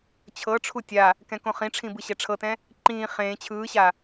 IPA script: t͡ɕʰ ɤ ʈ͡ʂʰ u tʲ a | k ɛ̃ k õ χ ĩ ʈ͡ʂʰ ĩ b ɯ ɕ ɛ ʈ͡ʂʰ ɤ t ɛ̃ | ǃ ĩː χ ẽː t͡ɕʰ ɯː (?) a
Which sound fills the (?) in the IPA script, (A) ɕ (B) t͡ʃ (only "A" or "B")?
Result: A